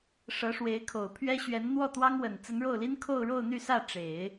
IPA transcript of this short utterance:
ʂ ɤ˧˥ ʂ w e˧˥ ɪ̯ kʰ o˨˩ ʊ̯ pʰ ɥ ɛ˥ ɕ ɥ ɛ˧˥ n n̪ w ɔ˥˩ t̪ w ɑ˥ ŋ w ə˨˩ n t͡s ə˧˥ n ɻ o˥˩ ʊ̯ l i˥ n kʰ o˥˧ ʊ̯ ɻ o˥˧ ʊ̯ n̪ y˥˧ s ä˥˩ ʈ͡ʂ e˨˩˦ ɪ̯

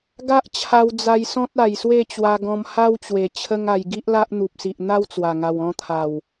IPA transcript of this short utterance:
ɡ a˦ ʔ t͡ɕʰ a˧ w d͡z a˧ j s ɔ̃˦ t̚ a˨˩ j s w e˥˧ t͡ɕ w a˧ ɡ ɔ̃˧ m h a˦ w t͡ɕ w e˨˩ t͡ɕʰ ə˦ ŋ a˧ j ɡ i˦ ʔ l a˦ ʔ n̪ u˨ p̚ s i˨ ʔ n̪ a˦ w t͡s w a˨˩ ŋ a˨˩ w ɔ̃˧ t̪ʰ a˨˩ w

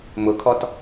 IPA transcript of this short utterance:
m ʊ kʰ ɔ t

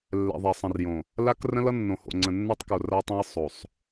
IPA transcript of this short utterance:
lː ɛ̰˨ ðˤ ɛ˨ sˤ ə̃˨ r j õ˨ | l a˦ k r ə̃˦ l ʌ˦ nː õ˨ h o̰˨ ŋ͡ǀ ə̃˨ nː a˦ tˤ k o˨ r a˦ tˤ ɛ̃˦ j sˤ o˨ sˤ

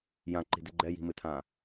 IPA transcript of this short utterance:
j ã ǃ i̤ d e ɡ͡ǃ ɛ j i̤ m ɨ tʰ ã

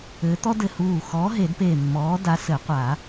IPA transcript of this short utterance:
ɘː˨˥ t̪ ɔ˥ d ɘ˧˩ h uː˧˩ x ɔː˨˥ ɦ e˨˩˦ d p eː˧˩ mː ɔː˨˥ d a˨˥ s ɘ˨˩˦ qʷ a˨˩˦

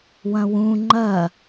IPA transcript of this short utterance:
w ɐ̃ w ũ ŋ͡ǃ ɐ

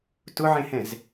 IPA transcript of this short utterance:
t ʊ ʕ ẽ h ɛ̃ z

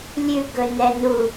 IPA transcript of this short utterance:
lʲ ʉ ɡ ɵ n ɛ n u

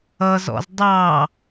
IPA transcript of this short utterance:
ʌ z ɔ̰ z dˤ ɑ

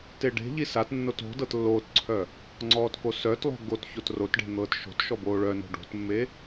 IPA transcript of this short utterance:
t e ɖ e̤ ʎ i s a t nː o t o̤ d ɤ t lː oː t ǀʰ œ | ŋ͡ǀ ɔː t k o s œ t lˠ o̤ ɡ o t ç o t r o t ɖ e̤ n̪ ɤː t ʃ o̤ t ʃ ɔ b oː ɭ œ n o̤ ɖ o̤ t mː e

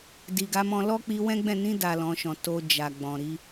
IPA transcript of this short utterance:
d i˨ ɡ a˨˦ m ɔ̃˧ l ɔ˦ k͡p i˧ w ɛ̃˦ ɡ͡b ɛ̃˦˨ n ĩ˧ d a˨ l ɔ̃˨˦ ʃ ɔ̃˧ t o˧ d͡ʒ a˨ ɡ͡b ɔ̃˨ ɾ i˧

